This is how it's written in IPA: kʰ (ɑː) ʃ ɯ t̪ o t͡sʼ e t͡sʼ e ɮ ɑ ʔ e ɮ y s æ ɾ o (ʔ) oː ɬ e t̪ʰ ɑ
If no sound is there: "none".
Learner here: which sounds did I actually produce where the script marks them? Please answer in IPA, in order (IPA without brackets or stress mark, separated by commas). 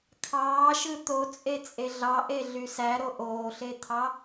ɑː, ʔ